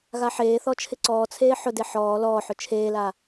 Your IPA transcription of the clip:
ɣaħeːθɔ t͡ʃʰɪǀɔːt͡sʰeː ħʊde ħɔː lɔːħʊ t͡ʃʰeːla

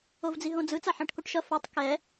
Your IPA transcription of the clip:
ovd͡ziɦõd͡zɯ t͡saħãʈkoʈʃʌ fʌtˤ kɛ

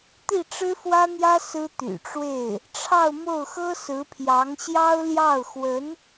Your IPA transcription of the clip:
t̪i˥˩ʈ͡ʂɻ̩˥fwä˥n̪jä˥ sɹ̩˥t̪y̰˨˩ʈ͡ʂwe˥˩ɪ̯ | ʈ͡ʂʰɑ˥˧ʊ̯mo˥˩ʊ̯xɤ˥ sɹ̩˧˥pʰjɑ˧˥ŋɕjɑ˥ʊ̯ ljɑ˥˩ʊ̯xwə˧˥n

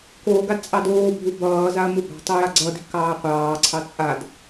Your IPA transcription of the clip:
koːɡad t͡sʼɑdoːbʱu bʌːzaɐ̯ muba̤tˤu jaɡ͡ǀʌdi̤ kɑːqʷɑːǀʰɑ t͡sʼad

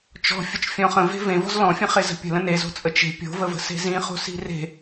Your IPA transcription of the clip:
t͡ʃɔ̤fʲət͡ʃ fʲɔ̃χə̃ve̤ vẽvɔ̤z lɔ̃fʲə̃χe zə̤pʲə̤lə̃ nezo̤t͡sʼə t͡ʃe̤ pʲo̤vəvə̤ se̤zĩχo̤si̤ re̤

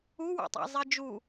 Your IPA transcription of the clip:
uwṵtˤæ̰zˤi d͡ʒu

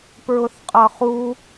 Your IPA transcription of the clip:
pɹʊθqʼʌχu

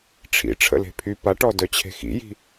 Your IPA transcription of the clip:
ʈ͡ʂʰḭ ʈ͡ʂʰə̰le̤pʰy paʈɔ dœt͡ɕʰe̤xḭji̤

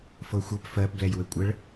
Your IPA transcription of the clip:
fɤxʷɤp fɜpblɛj wɘkʷʼəɭ

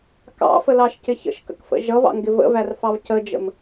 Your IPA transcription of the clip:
kɑ̰fəlɑʃcɪ çə̰ʃkə̰kfə̰ ʒʌvɑ̰ŋɡɪ və̰værfɑv cəd͡ʒə̰m

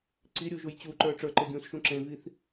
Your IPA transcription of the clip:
ǀiɾʲuʒuj t͡ɕuǃə˞ ʈ͡ʂə˞ǃe ɡʲũsʃũ ǁẽviθ

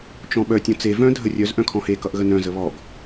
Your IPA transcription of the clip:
t͡ʃɔ̃ɓœ tʲɔ̃t͡se vœ̃ dʱərʲœz ʔœ̃kʰɔ̃he kʌʔɣənœ̃ zəβɔɡ

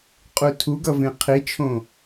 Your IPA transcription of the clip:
qʼutʰuɡʌvẽ qʰit͡ʃʰõ

